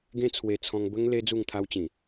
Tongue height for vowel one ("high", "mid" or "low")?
mid